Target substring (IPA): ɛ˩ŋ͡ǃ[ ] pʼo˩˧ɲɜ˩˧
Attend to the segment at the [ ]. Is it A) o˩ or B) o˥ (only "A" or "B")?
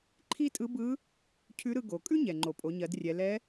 A